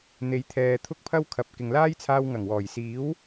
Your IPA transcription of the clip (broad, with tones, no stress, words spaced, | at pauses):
n̪e˨˧jt̪ʰɛː˨ t̪ʰʊ˥k̚pʰɐ˥wkʰɐ˨p̚ kɪ˨ŋlaː˥jt͡sʰaː˧w ŋɐ˨˩ŋwɔː˨˩j siː˨˥w